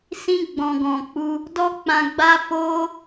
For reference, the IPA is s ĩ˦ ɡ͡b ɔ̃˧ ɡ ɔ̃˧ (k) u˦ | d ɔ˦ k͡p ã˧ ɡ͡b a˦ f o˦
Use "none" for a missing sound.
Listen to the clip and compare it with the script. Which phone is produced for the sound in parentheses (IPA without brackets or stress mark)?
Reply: k͡p